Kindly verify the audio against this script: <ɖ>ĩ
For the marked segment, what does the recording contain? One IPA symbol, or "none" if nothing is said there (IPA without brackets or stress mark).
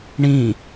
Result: ɳ